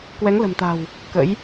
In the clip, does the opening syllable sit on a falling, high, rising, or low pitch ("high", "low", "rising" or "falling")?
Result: rising